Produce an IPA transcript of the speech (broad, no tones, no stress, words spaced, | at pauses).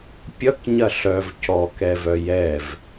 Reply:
pʲʌkɲɐ ɬœv cɔkɛvœ jɛv